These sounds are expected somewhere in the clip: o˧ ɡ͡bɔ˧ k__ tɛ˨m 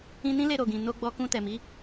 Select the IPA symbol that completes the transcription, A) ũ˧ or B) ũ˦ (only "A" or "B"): A